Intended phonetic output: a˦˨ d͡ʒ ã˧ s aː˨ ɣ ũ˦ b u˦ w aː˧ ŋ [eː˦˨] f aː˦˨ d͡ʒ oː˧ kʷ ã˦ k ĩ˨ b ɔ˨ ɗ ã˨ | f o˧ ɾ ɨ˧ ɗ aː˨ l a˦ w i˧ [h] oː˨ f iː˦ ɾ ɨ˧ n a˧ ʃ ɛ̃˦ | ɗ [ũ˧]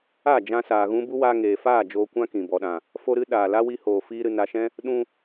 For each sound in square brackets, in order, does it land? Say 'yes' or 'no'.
no, yes, yes

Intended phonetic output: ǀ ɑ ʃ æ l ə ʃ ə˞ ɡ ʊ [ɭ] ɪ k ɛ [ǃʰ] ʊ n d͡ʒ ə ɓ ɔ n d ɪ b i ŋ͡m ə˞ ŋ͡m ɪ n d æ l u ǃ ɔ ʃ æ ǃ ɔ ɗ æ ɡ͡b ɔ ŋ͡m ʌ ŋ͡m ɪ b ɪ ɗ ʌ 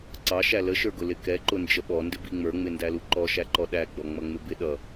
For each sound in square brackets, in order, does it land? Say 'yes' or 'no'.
no, no

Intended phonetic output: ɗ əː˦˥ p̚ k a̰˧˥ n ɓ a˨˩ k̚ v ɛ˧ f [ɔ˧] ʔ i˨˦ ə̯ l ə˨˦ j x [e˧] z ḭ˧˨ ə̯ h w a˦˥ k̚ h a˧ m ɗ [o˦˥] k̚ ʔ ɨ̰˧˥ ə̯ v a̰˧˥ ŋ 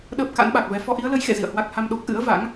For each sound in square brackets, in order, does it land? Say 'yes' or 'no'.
yes, no, yes

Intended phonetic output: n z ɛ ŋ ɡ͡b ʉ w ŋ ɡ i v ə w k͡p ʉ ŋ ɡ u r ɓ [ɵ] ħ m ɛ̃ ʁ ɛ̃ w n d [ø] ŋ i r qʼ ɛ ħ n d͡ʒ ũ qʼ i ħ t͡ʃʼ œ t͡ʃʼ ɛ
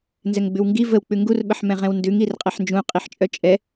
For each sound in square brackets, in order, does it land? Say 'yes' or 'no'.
no, no

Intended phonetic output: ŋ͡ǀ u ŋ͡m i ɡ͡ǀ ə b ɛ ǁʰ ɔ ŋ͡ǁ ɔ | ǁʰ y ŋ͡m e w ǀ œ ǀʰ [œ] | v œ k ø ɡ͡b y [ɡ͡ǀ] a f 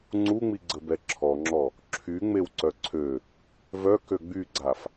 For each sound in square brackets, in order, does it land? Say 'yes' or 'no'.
no, yes

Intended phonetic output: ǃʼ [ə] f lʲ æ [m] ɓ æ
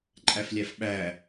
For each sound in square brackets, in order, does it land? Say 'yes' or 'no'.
no, no

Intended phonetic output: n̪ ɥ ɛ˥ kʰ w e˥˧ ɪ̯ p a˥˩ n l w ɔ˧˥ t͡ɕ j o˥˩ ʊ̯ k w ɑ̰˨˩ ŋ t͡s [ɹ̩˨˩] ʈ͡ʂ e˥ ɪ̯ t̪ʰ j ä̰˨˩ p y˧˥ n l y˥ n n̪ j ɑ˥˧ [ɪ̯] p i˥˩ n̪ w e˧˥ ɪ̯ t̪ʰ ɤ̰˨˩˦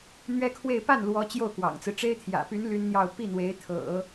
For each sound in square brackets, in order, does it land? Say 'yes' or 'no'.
no, no

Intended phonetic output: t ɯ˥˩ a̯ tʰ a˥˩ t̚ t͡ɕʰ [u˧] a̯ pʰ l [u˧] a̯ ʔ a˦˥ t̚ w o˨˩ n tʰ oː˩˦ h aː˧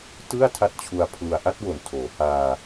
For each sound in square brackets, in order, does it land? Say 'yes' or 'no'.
yes, yes

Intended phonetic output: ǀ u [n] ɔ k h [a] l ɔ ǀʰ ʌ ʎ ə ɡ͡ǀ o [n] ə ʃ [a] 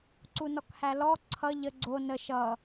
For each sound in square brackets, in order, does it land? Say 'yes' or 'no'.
yes, no, yes, no

